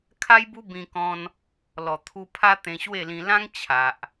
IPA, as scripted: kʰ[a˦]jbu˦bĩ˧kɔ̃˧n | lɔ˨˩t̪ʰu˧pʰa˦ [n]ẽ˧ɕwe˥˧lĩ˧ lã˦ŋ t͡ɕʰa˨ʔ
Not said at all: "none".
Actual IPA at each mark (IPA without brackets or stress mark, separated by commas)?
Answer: a˦, t̪